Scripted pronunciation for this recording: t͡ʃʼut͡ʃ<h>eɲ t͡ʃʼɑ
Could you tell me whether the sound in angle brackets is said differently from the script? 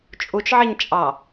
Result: yes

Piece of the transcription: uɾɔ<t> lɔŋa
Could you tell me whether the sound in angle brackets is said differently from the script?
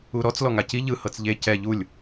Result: yes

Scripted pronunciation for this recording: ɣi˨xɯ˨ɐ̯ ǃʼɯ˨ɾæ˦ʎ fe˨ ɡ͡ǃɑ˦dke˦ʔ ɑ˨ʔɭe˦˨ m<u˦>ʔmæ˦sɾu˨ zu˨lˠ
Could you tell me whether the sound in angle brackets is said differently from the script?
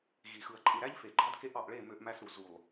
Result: yes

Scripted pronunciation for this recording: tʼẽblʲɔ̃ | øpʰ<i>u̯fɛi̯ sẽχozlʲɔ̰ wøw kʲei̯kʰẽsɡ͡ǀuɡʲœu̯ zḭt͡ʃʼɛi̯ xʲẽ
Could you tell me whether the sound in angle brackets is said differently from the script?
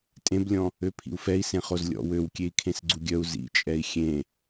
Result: yes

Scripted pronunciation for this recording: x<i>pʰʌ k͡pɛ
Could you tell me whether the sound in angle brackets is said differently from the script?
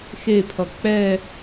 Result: yes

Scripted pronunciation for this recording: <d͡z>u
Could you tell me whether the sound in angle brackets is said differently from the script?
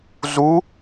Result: yes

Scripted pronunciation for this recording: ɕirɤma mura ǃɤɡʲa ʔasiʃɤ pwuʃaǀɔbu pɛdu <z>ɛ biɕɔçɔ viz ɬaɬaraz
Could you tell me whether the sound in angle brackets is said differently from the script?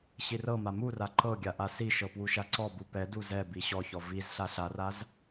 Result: no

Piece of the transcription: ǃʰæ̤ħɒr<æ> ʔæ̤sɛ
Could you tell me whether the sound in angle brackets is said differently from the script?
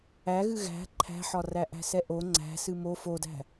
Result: no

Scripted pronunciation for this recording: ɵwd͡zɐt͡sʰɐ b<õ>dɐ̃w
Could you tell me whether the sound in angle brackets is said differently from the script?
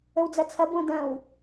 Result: no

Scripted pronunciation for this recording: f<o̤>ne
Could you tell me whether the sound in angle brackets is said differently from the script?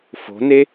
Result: no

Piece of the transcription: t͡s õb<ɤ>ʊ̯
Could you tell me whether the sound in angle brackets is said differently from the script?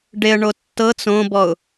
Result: yes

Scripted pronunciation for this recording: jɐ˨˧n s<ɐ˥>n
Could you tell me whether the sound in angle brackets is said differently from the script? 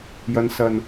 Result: yes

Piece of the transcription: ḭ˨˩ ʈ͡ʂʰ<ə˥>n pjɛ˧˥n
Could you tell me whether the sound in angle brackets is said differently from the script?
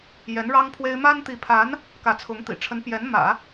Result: yes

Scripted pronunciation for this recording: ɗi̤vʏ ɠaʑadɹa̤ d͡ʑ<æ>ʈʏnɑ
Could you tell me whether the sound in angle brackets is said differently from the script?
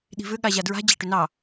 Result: no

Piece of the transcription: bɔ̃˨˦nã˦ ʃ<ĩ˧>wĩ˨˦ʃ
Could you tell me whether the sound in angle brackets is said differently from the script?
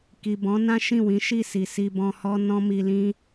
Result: yes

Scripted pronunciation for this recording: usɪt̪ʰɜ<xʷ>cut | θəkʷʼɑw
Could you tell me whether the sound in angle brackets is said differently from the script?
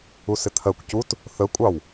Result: yes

